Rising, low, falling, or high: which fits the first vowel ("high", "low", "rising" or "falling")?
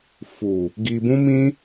low